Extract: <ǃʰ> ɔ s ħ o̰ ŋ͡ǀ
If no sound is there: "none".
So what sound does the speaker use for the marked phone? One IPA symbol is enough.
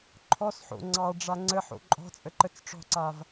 ǃʰ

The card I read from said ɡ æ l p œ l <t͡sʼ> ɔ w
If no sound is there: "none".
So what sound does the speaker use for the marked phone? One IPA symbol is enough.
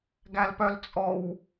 t͡sʼ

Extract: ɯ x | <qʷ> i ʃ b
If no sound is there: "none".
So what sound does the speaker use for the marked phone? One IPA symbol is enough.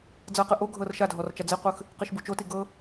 q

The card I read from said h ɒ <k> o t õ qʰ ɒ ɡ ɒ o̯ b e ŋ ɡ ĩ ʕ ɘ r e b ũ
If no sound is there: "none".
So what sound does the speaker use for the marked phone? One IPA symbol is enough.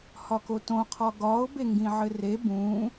k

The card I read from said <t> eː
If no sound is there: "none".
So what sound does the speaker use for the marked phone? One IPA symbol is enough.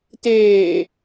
t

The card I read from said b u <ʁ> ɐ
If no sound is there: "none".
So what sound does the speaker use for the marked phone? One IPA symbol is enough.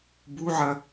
ʕ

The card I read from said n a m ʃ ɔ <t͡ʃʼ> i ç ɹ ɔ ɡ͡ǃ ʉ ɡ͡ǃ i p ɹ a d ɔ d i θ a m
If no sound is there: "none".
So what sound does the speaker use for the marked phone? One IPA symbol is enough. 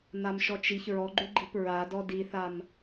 t͡ʃ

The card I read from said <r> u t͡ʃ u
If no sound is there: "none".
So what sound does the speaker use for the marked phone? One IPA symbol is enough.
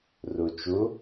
r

